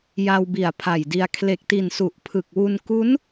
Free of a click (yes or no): yes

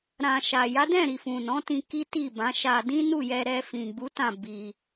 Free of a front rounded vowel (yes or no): yes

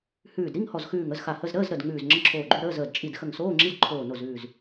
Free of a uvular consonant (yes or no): yes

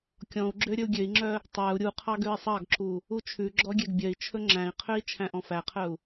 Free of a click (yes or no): no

